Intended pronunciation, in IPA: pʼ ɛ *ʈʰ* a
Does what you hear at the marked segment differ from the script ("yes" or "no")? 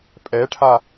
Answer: no